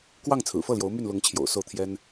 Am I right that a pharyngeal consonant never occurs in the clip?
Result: yes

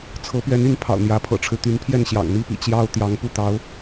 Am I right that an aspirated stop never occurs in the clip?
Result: no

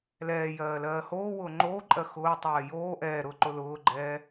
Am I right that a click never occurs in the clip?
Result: no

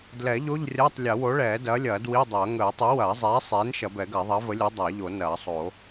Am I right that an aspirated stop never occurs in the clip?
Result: yes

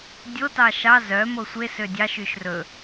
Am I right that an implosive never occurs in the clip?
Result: yes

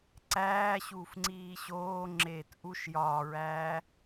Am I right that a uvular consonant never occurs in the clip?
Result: yes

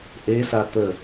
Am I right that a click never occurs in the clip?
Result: yes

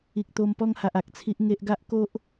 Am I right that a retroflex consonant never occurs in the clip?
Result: yes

